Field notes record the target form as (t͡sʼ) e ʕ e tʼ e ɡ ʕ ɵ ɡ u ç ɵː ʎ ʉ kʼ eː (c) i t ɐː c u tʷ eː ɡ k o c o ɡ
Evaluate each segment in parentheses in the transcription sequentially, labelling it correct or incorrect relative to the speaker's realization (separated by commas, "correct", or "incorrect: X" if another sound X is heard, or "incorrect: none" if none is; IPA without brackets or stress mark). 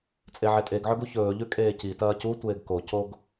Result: correct, correct